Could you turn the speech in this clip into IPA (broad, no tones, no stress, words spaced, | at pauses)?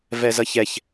vɛzʌçɛç